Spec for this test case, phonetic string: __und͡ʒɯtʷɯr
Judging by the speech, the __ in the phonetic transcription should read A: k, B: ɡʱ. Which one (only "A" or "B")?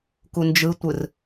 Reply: A